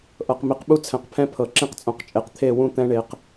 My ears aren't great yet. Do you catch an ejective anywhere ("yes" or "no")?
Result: yes